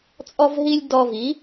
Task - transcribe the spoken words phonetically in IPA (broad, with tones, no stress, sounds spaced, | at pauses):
t͡sʼ ɔ˦ v ɦ i˦ lʲ d ɔ˧ v i˨˦